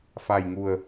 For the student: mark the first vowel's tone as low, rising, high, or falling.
low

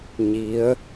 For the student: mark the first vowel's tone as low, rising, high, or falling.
rising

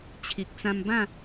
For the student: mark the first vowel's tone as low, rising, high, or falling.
low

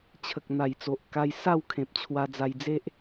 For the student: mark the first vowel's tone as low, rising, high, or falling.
low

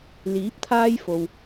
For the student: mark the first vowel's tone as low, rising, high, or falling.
rising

